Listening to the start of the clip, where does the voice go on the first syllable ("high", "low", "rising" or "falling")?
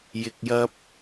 low